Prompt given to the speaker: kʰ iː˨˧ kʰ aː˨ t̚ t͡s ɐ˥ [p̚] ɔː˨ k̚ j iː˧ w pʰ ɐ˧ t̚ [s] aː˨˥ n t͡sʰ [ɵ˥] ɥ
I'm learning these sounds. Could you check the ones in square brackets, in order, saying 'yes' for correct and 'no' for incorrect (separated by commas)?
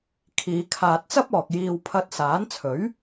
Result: yes, yes, no